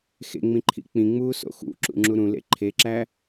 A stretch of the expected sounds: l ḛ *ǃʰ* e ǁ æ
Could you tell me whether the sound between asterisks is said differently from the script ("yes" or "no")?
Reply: no